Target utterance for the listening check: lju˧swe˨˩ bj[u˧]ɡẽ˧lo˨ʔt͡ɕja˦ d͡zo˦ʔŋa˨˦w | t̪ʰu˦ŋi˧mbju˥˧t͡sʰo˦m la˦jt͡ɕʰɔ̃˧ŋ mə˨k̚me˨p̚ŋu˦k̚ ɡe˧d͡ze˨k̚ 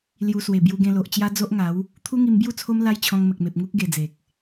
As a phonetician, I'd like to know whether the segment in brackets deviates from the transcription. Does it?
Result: no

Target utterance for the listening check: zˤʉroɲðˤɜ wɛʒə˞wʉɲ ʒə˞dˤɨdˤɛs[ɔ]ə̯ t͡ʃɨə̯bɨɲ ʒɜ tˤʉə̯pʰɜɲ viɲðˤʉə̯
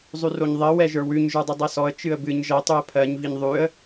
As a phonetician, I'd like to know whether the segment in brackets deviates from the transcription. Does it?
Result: no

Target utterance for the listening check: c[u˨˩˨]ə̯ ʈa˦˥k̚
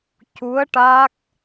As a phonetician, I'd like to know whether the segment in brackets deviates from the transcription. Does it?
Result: yes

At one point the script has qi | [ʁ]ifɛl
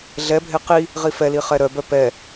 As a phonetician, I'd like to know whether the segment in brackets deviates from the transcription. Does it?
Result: no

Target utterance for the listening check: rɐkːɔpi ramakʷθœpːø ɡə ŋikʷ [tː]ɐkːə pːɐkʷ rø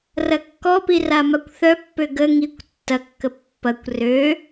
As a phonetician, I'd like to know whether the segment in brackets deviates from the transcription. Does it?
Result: no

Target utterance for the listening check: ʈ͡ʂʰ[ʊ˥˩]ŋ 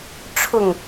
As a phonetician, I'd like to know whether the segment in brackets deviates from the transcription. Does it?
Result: no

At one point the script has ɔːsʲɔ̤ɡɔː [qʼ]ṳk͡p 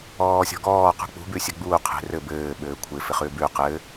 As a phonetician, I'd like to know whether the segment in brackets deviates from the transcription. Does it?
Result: yes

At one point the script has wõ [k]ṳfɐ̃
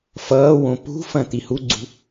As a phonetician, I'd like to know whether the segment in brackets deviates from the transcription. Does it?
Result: yes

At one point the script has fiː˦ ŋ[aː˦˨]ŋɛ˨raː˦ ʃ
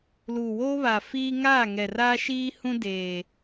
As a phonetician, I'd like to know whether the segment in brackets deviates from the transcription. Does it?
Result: no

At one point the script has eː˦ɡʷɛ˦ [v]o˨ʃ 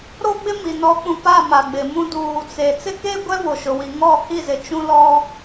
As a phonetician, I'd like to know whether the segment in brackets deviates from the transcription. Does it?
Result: no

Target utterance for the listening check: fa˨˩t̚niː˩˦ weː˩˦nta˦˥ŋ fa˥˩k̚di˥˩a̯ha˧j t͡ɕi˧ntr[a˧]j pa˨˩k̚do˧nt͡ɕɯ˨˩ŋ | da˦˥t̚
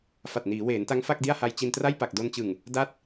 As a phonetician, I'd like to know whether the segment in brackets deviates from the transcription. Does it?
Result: yes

